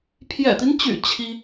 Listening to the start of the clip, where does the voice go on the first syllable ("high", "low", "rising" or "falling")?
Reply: low